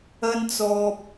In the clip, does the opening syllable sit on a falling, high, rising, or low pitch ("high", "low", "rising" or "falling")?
high